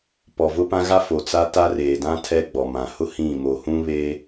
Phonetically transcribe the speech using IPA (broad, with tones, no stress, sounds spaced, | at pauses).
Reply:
p ɔ˨ v ʊ˦ p ã˦ ɣ a˦ f o˨ t͡s a˦ t a˦ r eː˨ d ã˦ tʰ ɛ˦ ɡ͡b ɔ˨ m ã˨ h ʊ˦ h ĩ˦˨ m o˨ h ũ˦ β eː˦